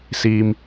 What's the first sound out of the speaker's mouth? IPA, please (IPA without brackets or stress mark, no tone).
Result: s